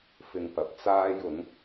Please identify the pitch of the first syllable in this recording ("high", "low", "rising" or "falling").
low